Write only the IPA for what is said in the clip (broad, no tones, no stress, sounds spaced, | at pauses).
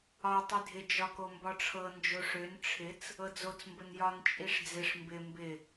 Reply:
ɒ tˤ i dʱ ɪ d͡ʒ ɒ k o m b ɒ ʈ͡ʂʰ ɤ n d͡ʒ o ʂ ø n ʈ͡ʂʰ ɪ t͡s | ɤ d͡z o t͡s m b ə n j ɒ n t͡ʃʼ i ʂ d͡z ɪ ʂ m b ɪ m b ɪ